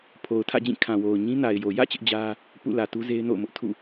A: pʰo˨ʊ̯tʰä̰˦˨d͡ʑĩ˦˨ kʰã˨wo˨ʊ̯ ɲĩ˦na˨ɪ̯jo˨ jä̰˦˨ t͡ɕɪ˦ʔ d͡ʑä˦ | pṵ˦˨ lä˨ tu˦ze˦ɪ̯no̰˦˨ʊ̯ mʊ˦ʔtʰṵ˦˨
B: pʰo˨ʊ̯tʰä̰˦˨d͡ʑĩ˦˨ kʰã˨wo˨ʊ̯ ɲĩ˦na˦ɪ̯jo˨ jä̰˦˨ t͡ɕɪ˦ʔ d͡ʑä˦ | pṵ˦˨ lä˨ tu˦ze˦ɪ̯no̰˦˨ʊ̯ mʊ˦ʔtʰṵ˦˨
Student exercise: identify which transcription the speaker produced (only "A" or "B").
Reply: A